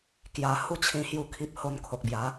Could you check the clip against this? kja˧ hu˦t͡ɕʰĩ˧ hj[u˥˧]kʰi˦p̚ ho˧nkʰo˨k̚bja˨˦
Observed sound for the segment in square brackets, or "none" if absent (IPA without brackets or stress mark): u˥˧